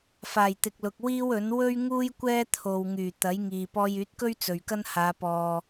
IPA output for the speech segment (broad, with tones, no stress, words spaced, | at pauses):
faː˨˩jt̪ɪ˨k̚lʊ˨k̚ wiː˥wɵ˨˥n wɵ˥ɥŋuː˥j kʷɛː˥t̪ʰo˨wŋyː˨˩ t̪ɐ˨˥jŋiː˨ pɔː˧jyː˨˥t̚kɵ˥ɥ t͡sɵ˨ɥkɐ˥nhaː˨˧ pɔː˨